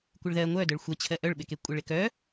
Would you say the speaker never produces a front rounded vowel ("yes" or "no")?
no